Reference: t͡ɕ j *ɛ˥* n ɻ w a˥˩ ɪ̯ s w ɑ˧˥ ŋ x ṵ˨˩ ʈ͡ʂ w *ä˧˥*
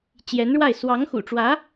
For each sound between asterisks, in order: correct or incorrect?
incorrect: ɛ˧˥, correct

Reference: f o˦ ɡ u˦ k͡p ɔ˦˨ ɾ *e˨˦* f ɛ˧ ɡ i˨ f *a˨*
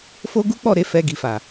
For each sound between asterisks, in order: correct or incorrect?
correct, correct

